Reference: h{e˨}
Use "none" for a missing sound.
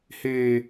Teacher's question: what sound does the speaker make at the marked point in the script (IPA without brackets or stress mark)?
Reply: eː˨